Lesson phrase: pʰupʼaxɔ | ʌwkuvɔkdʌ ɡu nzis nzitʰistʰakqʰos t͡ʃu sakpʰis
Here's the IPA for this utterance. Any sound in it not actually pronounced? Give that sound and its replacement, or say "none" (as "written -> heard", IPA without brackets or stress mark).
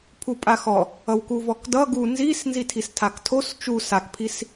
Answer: qʰ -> tʰ